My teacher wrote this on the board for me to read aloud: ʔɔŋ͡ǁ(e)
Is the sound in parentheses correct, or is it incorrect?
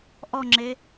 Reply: correct